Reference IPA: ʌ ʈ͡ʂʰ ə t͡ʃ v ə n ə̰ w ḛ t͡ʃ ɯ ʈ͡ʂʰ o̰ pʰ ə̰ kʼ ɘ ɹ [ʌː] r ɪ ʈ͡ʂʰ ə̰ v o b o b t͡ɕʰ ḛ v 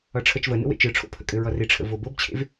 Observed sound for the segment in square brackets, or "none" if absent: ʌ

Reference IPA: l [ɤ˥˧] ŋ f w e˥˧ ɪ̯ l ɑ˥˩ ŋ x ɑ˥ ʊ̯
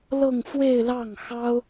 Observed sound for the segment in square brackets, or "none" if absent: ɤ˥˧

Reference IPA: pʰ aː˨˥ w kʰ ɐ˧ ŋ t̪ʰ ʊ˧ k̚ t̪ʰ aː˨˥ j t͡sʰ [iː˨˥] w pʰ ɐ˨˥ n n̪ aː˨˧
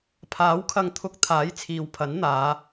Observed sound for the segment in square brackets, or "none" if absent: iː˨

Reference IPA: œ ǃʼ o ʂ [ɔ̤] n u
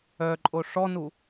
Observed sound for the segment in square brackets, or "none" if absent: ɔ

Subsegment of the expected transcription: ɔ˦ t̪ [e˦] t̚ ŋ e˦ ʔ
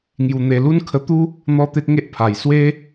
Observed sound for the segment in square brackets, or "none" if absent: e˦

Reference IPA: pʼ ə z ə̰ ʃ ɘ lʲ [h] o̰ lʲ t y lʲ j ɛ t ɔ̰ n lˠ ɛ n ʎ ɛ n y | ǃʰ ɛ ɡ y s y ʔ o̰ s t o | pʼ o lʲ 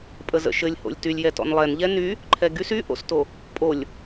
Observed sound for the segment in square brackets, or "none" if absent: h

